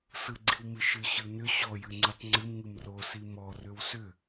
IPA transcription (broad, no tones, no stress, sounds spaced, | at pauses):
s ɯ ɡ͡ǀ i w m ɨ ʃ ɨ ɕ ɯ n ʏ ɕ ɔ j ɨ ŋ͡ǀ ɨ tˤ ŋ͡ǀ ɨ m ŋ ɨ m r o s i m ɔ r ʏ w s ʏ